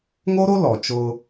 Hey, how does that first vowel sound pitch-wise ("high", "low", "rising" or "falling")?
high